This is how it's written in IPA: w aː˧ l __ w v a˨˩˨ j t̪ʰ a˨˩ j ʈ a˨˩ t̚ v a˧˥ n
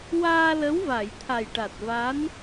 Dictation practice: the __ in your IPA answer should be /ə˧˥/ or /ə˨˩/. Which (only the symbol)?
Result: ə˧˥